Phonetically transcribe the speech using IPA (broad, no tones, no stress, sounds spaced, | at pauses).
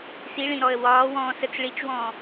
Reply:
s i ɭ ĩ ɾ ɔ ə̯ w ɒː w ɔ̃ː s ə t͡s ɭ i t͡ʃ w ɔ̃ː